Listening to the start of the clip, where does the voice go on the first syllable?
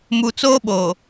low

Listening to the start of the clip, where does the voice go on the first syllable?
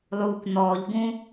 low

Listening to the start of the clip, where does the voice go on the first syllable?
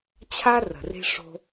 high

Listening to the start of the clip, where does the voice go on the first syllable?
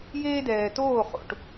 high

